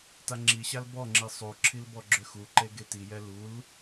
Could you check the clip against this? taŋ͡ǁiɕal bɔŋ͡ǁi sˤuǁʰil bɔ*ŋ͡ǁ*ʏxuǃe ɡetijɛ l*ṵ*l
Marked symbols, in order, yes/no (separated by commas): no, no